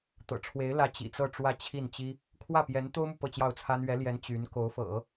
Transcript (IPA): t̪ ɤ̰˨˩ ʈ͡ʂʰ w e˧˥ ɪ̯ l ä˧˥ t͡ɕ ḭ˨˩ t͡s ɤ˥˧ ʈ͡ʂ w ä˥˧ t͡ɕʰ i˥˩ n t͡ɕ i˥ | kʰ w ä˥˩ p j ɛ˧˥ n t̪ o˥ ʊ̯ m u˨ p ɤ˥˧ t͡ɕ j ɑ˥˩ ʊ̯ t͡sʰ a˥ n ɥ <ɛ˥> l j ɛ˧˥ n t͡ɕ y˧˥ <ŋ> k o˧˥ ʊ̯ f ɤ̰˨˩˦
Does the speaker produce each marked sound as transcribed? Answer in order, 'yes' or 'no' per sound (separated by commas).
no, no